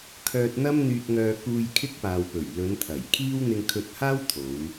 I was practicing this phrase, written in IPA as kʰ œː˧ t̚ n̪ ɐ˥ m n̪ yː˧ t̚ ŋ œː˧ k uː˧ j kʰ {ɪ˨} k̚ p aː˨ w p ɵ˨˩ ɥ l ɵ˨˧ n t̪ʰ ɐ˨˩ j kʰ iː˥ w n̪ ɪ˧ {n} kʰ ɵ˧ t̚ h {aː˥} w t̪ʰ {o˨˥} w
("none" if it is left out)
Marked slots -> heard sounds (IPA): ɪ˥, ŋ, aː˥, o˨˧

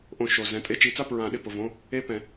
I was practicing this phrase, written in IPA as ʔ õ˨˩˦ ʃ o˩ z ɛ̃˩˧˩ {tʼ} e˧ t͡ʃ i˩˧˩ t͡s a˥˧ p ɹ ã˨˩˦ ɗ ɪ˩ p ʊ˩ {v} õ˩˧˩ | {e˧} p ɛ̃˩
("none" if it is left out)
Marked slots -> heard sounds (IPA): tʼ, v, e˧

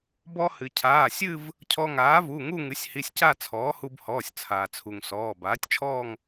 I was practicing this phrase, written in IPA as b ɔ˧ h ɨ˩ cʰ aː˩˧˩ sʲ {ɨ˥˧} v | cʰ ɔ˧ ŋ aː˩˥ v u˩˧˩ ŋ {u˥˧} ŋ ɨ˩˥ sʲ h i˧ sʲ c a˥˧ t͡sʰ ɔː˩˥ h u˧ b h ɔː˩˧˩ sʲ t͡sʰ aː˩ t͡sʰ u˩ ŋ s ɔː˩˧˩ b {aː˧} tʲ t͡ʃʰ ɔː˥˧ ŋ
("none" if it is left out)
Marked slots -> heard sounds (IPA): ɨ˥˧, u˥˧, aː˩˥

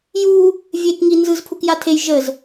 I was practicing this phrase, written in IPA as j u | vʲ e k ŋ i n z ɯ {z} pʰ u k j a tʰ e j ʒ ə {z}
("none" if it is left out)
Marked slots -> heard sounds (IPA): z, z

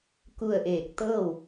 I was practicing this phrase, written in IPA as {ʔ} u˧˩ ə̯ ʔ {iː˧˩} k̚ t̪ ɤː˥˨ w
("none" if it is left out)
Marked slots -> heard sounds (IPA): k, eː˧˩

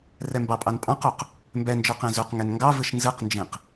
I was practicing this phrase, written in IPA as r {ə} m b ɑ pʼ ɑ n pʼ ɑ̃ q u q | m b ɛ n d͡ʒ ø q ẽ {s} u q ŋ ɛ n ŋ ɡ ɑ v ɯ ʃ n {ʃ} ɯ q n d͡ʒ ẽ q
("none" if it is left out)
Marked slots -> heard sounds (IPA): ɛ, z, z

